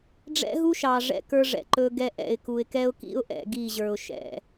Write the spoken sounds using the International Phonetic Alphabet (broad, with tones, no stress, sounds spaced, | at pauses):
ɖ͡ʐ ɛ̰˦ ɦ u˦ ʃ ɑ˨ ʐ ɛ̰˦ k ə˞˦ ʐ ɛ̰˨ ǃ ɵ˦ ɡ ɛ˦ ʔ ɛ̰˨ ɪ̯ k u˨ ɪ̯ k ɛ˦ ʊ̯ k ḭ˦ ʊ̯ ʔ ɛ̰˦˨ ɡ i˦˨ ʑ ə˞˨ ʊ̯ ʃ ɛ̰˨